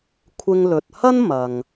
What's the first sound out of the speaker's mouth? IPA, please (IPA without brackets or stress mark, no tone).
kʷʰ